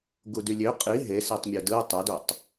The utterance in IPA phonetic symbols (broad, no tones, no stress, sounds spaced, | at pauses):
ɡ u d y lʲ ø qʼ i ɦ e s i tˤ mʲ o d ɯ tˤ æ d o tˤ